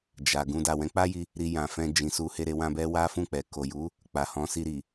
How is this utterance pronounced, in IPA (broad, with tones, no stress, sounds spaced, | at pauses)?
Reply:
d͡ʒ a˨ ɡ ũ˧ d a˨ w ɛ̃˨˦ k͡p a˦ j i˧ | ɾ i˧ j ã˨ f ɛ̃˧ d͡ʒ ĩ˨ s u˧ h e˧ ɾ e˧ w ã˧ b ɛ˦ w a˦ f ũ˦˨ k͡p ɛ˨ k o˨ j u˨˦ | k͡p a˨ h ɔ̃˨˦ s i˧ ɾ i˨